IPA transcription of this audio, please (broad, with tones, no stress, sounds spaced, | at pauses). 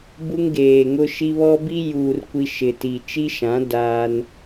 b u˦ ŋ ɡ eː˨ ŋ ʊ˦ ʃ i˦ β ɔ˦ b i˦ j uː˨ r kʷ i˦ ʃ ɪ˨ t i˨ t͡ʃ i˦ ʃ ã˨˦ d aː˦ n